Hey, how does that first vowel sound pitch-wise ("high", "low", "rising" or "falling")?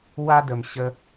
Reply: high